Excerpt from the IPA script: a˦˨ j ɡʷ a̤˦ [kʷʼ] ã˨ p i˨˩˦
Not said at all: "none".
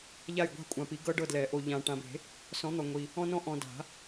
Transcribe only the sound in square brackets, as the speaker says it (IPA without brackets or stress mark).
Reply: kʷʼ